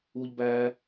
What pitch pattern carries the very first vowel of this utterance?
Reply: high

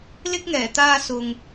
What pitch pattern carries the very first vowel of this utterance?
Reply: high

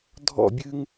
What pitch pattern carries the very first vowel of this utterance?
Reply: falling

